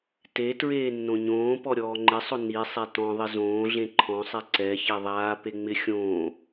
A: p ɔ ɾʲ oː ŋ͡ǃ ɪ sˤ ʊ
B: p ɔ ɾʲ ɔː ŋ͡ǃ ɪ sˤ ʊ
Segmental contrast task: B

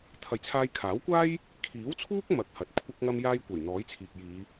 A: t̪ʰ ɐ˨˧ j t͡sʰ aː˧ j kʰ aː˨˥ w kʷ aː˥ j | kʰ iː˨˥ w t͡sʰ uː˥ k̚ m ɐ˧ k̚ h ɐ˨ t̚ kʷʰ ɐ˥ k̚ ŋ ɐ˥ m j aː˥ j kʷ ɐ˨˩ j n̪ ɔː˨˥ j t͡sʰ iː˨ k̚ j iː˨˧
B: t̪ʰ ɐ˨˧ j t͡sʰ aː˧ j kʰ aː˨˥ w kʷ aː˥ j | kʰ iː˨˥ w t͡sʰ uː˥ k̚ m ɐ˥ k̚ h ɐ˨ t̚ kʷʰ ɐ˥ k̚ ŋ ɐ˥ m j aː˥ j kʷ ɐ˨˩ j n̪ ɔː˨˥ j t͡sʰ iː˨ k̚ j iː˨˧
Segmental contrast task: A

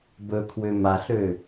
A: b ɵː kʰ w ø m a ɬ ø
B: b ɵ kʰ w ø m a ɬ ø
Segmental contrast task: B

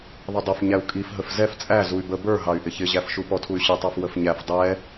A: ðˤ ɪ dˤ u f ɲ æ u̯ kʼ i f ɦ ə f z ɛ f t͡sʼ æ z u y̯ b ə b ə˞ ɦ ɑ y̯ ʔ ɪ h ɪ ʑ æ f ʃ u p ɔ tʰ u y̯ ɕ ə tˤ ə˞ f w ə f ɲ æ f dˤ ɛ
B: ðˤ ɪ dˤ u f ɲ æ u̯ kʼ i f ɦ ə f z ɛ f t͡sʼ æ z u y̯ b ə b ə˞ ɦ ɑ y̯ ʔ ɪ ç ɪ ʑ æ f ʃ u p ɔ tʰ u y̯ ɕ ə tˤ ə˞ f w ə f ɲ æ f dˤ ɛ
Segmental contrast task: B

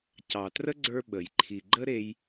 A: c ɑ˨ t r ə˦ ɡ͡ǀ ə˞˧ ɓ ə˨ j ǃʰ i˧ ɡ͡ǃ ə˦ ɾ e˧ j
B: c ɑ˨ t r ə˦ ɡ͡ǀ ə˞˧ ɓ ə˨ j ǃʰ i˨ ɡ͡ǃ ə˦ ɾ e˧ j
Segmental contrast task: B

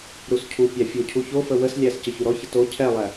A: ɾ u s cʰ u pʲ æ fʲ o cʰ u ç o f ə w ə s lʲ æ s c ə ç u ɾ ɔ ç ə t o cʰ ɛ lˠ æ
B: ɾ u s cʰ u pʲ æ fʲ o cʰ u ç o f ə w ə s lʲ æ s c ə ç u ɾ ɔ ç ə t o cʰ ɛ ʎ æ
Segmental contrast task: A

